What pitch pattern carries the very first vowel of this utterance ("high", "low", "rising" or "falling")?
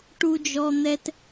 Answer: high